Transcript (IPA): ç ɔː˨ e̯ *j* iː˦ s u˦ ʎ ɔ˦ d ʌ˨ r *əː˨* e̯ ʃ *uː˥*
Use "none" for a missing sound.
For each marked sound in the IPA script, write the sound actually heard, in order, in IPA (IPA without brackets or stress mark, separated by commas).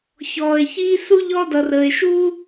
ç, əː˨, uː˥